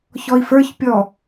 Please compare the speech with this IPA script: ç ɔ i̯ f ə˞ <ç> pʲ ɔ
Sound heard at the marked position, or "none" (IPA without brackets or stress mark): ç